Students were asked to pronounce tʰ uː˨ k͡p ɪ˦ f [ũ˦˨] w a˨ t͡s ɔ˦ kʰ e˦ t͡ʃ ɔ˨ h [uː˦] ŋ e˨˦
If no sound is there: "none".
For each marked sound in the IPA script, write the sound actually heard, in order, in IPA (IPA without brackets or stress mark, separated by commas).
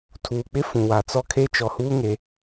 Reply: ũ˨, uː˦